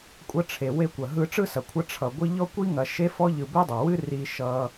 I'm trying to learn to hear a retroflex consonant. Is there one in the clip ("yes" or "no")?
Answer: yes